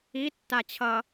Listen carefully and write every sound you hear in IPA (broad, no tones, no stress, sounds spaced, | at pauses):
i tː a t͡ɕʰ ʌ